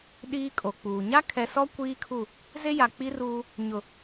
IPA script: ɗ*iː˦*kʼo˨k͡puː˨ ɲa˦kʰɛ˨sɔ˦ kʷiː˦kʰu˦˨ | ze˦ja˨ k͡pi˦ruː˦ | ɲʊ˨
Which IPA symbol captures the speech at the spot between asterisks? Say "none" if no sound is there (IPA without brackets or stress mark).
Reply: iː˦